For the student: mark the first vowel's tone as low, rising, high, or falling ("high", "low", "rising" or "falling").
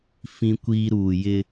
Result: high